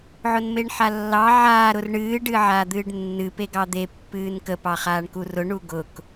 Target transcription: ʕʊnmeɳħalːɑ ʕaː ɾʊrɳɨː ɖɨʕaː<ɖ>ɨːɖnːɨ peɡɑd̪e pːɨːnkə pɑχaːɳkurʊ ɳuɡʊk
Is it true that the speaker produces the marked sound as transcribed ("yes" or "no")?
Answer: no